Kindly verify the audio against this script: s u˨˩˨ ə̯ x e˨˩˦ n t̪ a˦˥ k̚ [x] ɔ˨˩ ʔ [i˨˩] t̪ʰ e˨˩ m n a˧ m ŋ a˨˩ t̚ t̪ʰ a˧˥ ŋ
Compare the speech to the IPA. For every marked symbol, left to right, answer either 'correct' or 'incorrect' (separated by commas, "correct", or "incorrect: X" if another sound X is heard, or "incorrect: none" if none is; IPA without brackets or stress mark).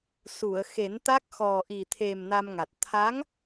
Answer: correct, correct